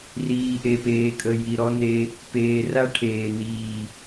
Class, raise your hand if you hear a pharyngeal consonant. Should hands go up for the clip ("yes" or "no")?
no